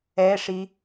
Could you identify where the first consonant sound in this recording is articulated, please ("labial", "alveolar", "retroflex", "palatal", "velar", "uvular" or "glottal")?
retroflex